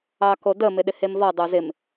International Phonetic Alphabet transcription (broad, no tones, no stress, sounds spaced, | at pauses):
ɑ k o d ə m ɪ ɗ ɪ h e m v ɔ dˤ o z ɪ m